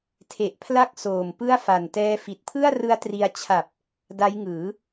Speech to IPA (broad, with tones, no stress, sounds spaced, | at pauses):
tʰ e˨˩ ʔ pʰ l a˥˩ k̚ s oː˨˩ m p ɯ˥˩ a̯ f a˨˩ n t ɛː˦˥ f i˨˩ t̚ pʰ ɯ˥˩ a̯ r ɯ˦˥ a̯ t r i˧ a̯ t͡ɕʰ a˨˩ p̚ | d a˦˥ j ŋ ɯː˩˦